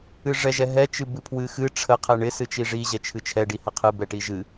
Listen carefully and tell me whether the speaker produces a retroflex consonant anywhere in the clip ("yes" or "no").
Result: yes